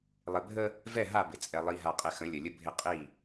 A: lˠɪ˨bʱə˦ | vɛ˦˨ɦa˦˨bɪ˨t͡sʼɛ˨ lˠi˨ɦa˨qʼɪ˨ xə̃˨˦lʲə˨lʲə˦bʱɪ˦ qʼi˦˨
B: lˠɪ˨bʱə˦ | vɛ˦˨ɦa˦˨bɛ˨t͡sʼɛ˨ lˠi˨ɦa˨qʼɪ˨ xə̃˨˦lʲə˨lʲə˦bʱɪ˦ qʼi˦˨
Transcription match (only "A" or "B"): A